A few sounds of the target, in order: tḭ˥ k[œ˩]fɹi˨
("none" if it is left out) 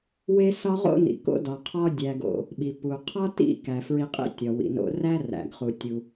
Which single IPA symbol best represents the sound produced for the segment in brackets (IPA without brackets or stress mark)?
æ˩